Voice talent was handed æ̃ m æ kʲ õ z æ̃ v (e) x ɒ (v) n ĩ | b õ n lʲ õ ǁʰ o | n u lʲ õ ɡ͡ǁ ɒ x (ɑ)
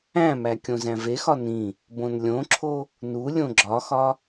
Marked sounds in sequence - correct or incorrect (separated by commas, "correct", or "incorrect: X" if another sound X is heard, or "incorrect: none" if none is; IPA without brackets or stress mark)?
correct, incorrect: none, incorrect: ɒ